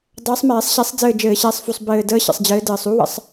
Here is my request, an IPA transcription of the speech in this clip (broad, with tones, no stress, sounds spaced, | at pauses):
dˤ əː˨˦ sˤ m ɛː˧˩˧ sˤ ɕ ɛ˨˦ sˤ d͡z ɘː˦˨ d͡ʒ ɘː˧˩˧ ɕ ɛː˨˦ sˤ f u˨˩ sˤ b ɘː˨˩ d əː˦˥ ɕ ə̰˨˩ sˤ d͡ʑ ɘː˨˦ d ɘː˨˩ sˤ u˨˦ w ə̰˧˩˧ sˤ